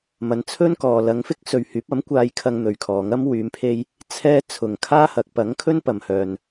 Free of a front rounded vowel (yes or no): no